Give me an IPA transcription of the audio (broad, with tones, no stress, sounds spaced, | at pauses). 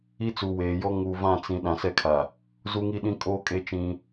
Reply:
i˦ t͡s u˨ w eː˨ j ɔ˦ ŋ u˨ v ã˦˨ t͡s ĩ˨ ɗ ã˨ s ɛ˦ kʰ a˨ | z u˦ ŋ i˦ ɗ ĩ˦ kʼ oː˦ kʼ e˦ t͡ʃ ĩ˦